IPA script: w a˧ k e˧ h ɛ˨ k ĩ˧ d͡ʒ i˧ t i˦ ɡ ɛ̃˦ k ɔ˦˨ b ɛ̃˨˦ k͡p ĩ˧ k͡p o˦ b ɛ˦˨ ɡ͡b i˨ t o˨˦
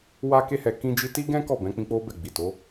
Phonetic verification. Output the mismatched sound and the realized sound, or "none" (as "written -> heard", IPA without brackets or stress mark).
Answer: none